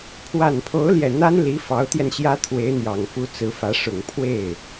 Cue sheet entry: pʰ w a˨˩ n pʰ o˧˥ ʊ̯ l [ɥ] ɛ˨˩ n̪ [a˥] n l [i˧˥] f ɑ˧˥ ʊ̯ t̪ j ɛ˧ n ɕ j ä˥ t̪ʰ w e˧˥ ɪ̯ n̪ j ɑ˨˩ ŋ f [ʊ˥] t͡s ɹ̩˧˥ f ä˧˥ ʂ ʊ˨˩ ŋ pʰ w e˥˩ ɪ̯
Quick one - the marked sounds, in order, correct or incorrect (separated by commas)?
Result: incorrect, correct, correct, incorrect